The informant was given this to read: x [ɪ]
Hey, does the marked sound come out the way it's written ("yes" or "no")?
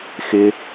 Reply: yes